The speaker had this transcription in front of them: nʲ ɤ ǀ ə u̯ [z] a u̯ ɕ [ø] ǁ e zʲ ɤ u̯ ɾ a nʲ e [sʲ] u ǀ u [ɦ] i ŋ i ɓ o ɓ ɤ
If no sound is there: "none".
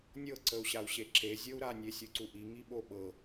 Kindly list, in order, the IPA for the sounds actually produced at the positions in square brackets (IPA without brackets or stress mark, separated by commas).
ɕ, e, sʲ, ʔ